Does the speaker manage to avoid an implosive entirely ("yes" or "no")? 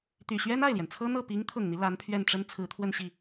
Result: yes